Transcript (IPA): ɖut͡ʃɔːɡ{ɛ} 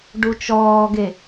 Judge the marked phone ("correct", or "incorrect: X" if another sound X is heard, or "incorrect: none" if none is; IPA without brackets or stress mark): incorrect: e